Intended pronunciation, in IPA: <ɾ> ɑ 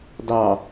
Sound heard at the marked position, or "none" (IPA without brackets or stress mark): d